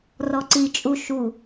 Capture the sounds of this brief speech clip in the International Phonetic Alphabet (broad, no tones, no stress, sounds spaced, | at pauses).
r ɔ ǀ i t͡ʃʼ u ʃ u